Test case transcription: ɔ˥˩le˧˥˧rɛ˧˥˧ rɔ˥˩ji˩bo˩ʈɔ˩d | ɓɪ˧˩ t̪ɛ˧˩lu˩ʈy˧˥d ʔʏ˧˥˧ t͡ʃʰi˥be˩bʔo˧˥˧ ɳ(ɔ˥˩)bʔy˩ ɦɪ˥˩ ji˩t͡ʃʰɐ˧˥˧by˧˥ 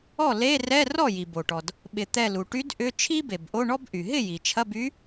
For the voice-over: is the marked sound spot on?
no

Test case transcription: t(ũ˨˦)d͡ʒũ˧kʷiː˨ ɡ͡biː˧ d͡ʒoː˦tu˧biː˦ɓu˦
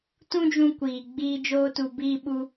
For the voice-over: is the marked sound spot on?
no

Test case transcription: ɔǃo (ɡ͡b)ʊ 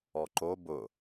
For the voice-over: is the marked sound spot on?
no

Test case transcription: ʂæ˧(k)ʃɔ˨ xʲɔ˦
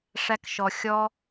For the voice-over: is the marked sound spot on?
yes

